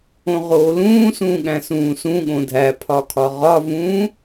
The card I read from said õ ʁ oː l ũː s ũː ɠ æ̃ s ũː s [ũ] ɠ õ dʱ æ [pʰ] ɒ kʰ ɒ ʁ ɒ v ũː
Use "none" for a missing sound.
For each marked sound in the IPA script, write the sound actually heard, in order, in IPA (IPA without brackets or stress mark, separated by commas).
ũ, pʰ